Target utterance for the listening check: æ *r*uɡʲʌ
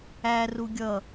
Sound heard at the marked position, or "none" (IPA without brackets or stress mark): r